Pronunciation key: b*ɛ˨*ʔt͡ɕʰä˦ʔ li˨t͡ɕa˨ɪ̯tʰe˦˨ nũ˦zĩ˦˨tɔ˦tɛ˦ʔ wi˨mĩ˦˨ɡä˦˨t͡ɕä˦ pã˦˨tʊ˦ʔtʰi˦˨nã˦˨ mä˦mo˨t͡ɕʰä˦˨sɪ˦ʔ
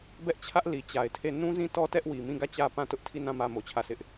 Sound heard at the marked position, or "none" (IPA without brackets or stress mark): ɛ˦